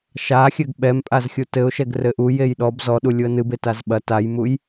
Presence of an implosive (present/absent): present